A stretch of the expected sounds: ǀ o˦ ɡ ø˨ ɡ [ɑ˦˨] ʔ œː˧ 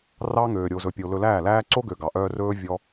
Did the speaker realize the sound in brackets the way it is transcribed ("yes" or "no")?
no